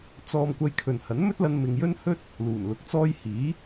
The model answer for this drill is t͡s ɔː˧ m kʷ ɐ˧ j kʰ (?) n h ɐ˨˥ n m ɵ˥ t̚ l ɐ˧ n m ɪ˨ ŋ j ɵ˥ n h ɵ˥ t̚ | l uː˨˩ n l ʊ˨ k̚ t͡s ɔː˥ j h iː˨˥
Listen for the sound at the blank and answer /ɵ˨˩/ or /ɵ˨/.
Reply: ɵ˨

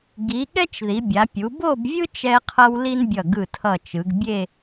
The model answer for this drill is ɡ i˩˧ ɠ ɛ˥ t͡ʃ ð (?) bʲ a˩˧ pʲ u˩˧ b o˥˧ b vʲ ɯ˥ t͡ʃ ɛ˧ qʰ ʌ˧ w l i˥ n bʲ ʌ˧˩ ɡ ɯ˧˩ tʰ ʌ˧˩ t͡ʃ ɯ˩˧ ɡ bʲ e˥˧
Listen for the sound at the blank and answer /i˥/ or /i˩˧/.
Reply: i˩˧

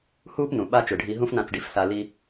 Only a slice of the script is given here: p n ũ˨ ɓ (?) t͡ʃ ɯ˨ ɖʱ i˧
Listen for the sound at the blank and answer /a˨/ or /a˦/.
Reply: a˦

